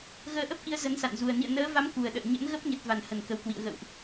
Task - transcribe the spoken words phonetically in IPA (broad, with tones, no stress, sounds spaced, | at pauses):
ɣ əː˧ ʔ ə˦˥ p̚ ʔ i˧ ə̯ z ə˨˦ n s a̰˧˨ n z u˨˩ ə̯ n ḭ˧˨ ə̯ n əː˨˦ v a˨˦ m k u˨˩ ə̯ ɗ ə̰ː˧˨ ɲ ə̰˧˥ n ɣ ə˦˥ p̚ ɲ ə˨˩ t̚ v a˧˩ n h ə˧˩ n k ə˨˩ w k w ḭ˧˨ ə̯ ɣ ə̰˧˨ w ʔ